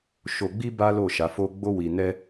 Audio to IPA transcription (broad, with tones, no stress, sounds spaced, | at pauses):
ʃ o˧ ɡ͡b i˦ b a˦ l o˦˨ ʃ a˨˦ f o˦ ɡ͡b o˦ w i˧ n ɛ˦